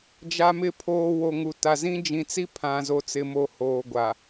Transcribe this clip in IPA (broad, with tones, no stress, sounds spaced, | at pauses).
d͡ʒ a˨ m ɪ˨ pʰ oː˨ w o˨ ŋ u˨ t a˨ z ĩ˦ d͡ʒ ĩ˨ t͡s i˦ pʰ ã˨ z o˨ t͡s ɪ˨ m o˨ h oː˨ ɡʷ a˨